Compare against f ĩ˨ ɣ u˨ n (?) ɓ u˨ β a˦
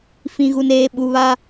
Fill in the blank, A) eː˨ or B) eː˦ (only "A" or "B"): A